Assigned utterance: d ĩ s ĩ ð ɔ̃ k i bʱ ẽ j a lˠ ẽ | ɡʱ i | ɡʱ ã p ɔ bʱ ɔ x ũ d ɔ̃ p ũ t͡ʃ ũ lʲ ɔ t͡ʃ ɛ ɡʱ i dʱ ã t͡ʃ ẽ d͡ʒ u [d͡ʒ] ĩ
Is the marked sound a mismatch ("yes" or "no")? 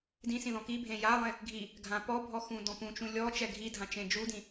yes